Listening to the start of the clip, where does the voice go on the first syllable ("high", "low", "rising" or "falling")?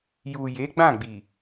low